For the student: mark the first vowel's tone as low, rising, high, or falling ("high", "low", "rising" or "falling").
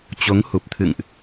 rising